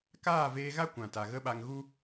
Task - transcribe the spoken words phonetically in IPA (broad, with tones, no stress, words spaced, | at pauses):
kaː˦˨veː˧ɣa˦ kʷã˨ta˨ɣə˦ɓa˧ŋ ɣu˦